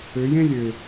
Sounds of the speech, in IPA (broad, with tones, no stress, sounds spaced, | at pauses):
ø˨˦ j ẽ˦ lʲ ø˨